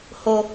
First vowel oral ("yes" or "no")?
yes